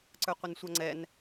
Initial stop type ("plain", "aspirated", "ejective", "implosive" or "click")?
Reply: click